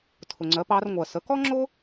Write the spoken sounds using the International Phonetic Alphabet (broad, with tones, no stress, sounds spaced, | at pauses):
tʰ ʊ˩ ŋ͡ǀ ɜ˩˧ p ɑ˩˧ r ŋʷ ɜ˩ s ə˩˧ k ɔ˥ ŋ͡ǁ ʊ˥